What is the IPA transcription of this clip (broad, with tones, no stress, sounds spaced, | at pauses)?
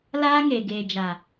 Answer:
l aː˦ ŋ e˨ ɡ eː˨ d͡ʒ a˨